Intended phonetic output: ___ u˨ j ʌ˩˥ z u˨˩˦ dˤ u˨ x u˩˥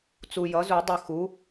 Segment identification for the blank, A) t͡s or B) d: A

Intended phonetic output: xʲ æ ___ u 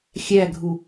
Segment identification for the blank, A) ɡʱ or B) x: A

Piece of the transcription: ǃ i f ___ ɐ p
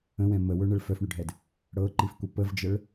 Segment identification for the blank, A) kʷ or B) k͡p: A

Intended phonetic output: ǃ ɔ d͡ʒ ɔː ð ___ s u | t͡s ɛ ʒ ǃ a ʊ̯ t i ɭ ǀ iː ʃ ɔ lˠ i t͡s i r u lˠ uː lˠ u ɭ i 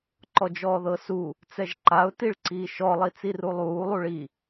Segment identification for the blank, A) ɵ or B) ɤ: B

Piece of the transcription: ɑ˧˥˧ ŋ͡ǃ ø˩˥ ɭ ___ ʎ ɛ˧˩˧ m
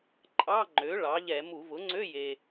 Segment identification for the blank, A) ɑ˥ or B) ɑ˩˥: B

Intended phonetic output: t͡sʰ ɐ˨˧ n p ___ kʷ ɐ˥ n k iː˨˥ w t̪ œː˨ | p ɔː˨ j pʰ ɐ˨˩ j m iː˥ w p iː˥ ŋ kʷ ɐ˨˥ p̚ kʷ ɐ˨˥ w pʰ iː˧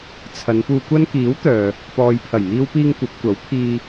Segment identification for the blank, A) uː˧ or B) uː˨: A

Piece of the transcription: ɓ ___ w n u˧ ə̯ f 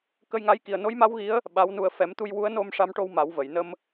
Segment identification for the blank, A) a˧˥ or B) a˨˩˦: A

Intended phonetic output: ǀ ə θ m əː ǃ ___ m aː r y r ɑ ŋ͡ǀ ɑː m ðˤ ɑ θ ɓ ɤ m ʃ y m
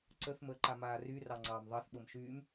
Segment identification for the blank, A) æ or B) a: B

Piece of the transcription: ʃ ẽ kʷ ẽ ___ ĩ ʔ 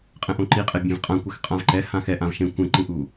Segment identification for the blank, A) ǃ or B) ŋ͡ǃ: A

